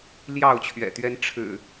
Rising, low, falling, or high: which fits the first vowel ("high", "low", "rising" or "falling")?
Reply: falling